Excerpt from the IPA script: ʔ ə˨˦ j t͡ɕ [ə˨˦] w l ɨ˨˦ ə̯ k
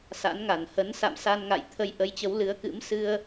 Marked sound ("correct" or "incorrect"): correct